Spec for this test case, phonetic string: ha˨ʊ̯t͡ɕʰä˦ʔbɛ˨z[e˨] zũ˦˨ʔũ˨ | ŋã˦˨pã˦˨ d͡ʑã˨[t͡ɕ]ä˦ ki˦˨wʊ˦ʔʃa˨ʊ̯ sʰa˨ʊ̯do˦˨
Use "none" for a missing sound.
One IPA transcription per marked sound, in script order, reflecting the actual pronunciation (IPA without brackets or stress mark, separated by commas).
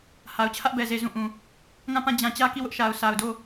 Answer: e˨, t͡ɕ